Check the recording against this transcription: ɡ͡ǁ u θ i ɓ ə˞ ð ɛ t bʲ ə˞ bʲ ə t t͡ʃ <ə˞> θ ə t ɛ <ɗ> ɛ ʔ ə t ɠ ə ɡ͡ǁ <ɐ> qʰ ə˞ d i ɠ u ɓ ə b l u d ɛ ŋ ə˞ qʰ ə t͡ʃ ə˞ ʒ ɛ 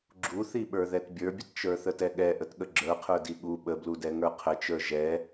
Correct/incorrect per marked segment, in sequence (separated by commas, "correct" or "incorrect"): correct, incorrect, incorrect